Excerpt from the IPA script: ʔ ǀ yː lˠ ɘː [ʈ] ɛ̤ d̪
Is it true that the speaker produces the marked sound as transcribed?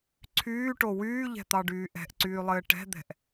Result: yes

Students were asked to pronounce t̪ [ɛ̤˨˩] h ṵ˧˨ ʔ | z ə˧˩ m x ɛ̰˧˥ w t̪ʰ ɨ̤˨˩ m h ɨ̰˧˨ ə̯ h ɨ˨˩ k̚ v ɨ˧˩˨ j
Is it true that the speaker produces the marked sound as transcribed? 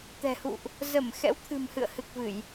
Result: yes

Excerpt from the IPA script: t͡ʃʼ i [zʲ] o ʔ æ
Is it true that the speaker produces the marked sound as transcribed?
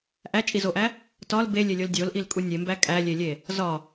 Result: no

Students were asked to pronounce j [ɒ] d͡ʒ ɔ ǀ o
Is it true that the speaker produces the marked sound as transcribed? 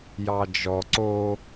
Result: no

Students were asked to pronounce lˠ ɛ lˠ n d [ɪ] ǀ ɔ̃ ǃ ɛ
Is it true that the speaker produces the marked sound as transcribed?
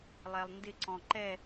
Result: yes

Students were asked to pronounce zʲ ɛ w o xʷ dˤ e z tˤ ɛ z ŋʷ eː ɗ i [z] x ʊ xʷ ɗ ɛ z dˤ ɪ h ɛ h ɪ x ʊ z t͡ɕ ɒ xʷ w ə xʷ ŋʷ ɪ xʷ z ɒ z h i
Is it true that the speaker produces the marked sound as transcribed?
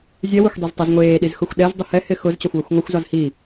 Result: yes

